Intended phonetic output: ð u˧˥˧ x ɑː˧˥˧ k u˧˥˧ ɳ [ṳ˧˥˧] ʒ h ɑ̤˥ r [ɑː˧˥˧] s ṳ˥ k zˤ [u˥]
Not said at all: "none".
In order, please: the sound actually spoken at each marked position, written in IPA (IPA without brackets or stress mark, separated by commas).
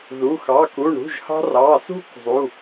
ṳ˧˥˧, ɑː˧˥˧, u˧˥˧